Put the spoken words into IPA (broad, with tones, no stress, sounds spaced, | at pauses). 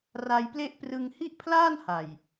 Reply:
r a˧ j p l e˥˩ ʔ p r ɯ˧ ŋ h i˥˩ ʔ pʰ l aː˥˩ n h a˨˩ j